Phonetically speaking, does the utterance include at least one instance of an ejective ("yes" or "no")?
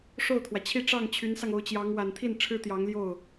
no